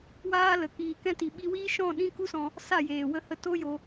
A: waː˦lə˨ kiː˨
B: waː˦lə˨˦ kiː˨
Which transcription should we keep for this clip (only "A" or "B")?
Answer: B